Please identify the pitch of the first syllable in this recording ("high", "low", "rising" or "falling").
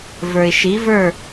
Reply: low